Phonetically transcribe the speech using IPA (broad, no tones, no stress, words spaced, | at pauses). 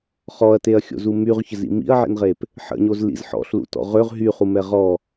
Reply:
χɔɐ̯teɐ̯xʲo̰zu myʁçəzḭ mḭɐ̯ʕḭnʁep | ħə̰ɲozlḭz ħɔ̰ɬlṵtɔ̰ ʁøʁ ɦyχumɛ ʁɔ